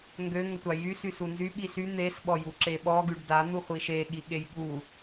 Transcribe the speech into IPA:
ŋɡø ŋətʷajy sysunzy ɓisy n̪es ɓɔjuǁeɓɔ ɡyɖda n̪uχʷiʃe ɠiɠejɠu

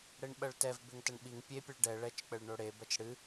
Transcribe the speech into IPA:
ɽeɳɓɐɭtɛv beŋtɐɳɓiŋ pʲepʲeɭ ɖɛ ɭɛt͡ʃk͡pɘɭ ɳoɽebɐt͡ʃ ɽɨ

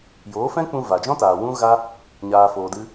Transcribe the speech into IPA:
joː˨˦fɛ̃˦k͡pũ˧ va˨d͡ʒɔ̃˦taː˨ wũ˦ɣa˦ | ɲaː˨foː˨dɨ˧

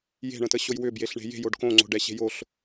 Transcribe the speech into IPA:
je̤ɳə̃təɕoj wʏbjeɬɳe̤ je̤joɖ kõŋ͡ǀo̤ɖɛɕe̤ joɬ

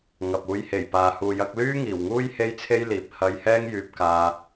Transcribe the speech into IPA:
ŋɐ˨p̚ uː˨˧jhe˨˩j paː˨huː˨ jɐ˧k̚lyː˥ ŋiː˨˩wŋuː˥j he˥jt͡sʰe˥jliː˨p̚ hɐ˧jhɛː˥ŋjyː˧p̚ kaː˧

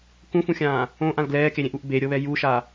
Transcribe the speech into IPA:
kũfũxʲãː | õʔãl ɡlɛːkeɾʲẽʔuʔ beɾʲɤβɛ juʃa

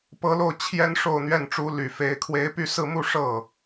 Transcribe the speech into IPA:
pɤ˧˥lo˥˩ʊ̯ t͡ɕʰjɛ˥n ʂo˥˧ʊ̯n̪ɥɛ˥˩nʈ͡ʂu˧˥ ly˨˩ fe˧˥ɪ̯ kʰwe˧˥ɪ̯py˥˧sɹ̩˥˧mu˥˧ ʂɤ˥˩

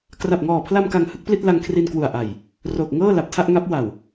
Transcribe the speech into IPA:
kra˨˩p̚ŋɔː˨˩pʰla˧m ka˧ŋhɯ˥˩k̚pli˥˩t̚ la˧ŋkʰri˧nkwu˨˩a̯ ʔa˨˩j | roː˨˩k̚ ŋɤː˥˩ la˨˩p̚tʰa˥˩ʔŋa˦˥p̚ wa˨˩w

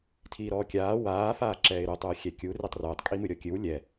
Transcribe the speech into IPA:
tʰiːɾɔːkʲaː waː faːǁɛːɪ̯ɾu tˤuːxʲɛkʲu ritˤrɨːtˤ kʼimɨɾʲɔkʲɨw lʲɛ

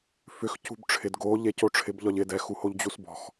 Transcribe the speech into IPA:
fʏxcṳb ʈ͡ʂʰɪd ɡo ʎecoʈ͡ʂʰɪb ʎɒʎɪ dɛxuhoʎ d͡ʑusbɔ̤x

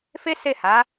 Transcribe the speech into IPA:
fe˦se˦˨ha˨˦

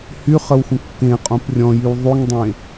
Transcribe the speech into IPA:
hyχəwxʷə̃ kːẽqʼõp rʲɔ̃jyw ðˤyŋdˤẽ

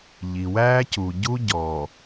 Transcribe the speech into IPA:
ʎi˨wæː˦cu˨ɟu˦ ɟɔ˨

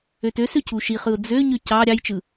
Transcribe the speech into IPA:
øtøsø cʰuʃiχɯʊ̯ d͡zøɲø cɑ ɾʲɑjt͡ʃɯ

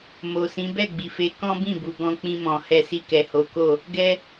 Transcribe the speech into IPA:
mo˨sĩ˨˦ bɛ˦˨ɡ͡bi˨fe˨˦ kɔ̃˦bĩ˦˨bu˨ ɡɔ̃˧k͡pĩ˧mɔ̃˨ hɛ˧si˧kɛ˨ ho˨˦ko˦˨ | ɡɛ˧

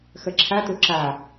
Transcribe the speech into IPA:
xɐǁʰat̪o ǁa

